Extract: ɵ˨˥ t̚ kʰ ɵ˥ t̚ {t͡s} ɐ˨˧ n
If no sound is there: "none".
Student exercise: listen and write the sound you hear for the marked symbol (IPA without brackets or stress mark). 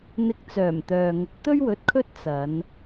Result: t͡s